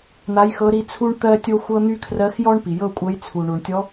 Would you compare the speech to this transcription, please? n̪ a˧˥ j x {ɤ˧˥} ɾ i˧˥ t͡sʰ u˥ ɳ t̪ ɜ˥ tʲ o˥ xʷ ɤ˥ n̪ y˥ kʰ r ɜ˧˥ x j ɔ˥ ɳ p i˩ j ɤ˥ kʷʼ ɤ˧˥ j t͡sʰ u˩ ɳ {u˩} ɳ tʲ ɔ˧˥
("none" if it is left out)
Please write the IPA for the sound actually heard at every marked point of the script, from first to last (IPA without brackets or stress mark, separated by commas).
ɤ˧˥, u˩